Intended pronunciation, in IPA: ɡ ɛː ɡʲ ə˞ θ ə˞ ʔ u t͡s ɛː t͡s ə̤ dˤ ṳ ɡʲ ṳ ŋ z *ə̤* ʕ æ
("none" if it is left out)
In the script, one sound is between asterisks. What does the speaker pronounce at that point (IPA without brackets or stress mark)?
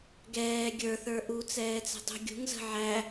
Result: ə̤